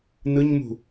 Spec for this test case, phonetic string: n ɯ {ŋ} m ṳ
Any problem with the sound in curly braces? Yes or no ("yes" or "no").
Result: yes